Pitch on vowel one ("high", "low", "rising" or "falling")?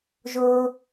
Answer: high